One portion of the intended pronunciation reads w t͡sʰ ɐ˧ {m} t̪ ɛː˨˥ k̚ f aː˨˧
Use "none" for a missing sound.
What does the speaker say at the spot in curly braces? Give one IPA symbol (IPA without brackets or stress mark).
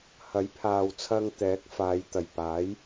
ŋ